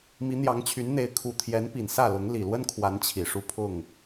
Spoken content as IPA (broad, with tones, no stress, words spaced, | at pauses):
mi˨˦n̪jɑ˨˦ŋt͡ɕʰy˨˦nn̪e˨˦ɪ̯ kʰu˨˩t̪ʰjɛ˨˦n pi˨˩nsä˥˨lʊ˨˦ŋ li˨˩lwə˦nkʰwa˨˦n t͡ɕʰi˨˩ʂu˥˨pʰʊ˥˨ŋ